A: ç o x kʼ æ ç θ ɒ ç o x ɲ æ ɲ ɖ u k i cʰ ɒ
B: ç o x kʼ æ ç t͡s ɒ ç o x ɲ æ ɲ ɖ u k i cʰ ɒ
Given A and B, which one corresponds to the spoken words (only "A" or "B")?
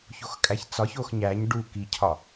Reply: B